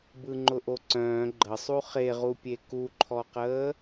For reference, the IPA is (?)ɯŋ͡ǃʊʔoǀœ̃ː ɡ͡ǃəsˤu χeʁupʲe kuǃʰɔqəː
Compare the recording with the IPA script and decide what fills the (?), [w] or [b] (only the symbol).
b